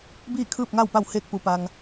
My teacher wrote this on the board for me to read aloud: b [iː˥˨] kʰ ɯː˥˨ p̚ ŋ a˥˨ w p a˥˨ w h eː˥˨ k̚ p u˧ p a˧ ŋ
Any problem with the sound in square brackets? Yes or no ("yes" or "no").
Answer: no